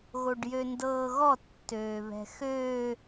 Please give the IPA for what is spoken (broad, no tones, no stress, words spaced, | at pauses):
ɣoɖjøndɤːɣɔ tːøːβɛ̤xø